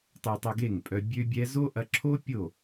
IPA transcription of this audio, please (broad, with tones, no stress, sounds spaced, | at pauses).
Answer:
tˤ ø˧ tˤ œ˧ ɡ e˦˨ ŋ pʼ œ˧ bʲ ø˦ bʲ ɛ˦ z o˦ ʔ ɐ˧ ǁʰ o˦ pʲ o˦˨